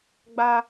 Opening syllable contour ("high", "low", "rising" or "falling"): high